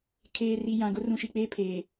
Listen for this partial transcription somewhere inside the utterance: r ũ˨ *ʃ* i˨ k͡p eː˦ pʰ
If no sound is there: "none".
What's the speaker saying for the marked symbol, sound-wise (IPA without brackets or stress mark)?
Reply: ʃ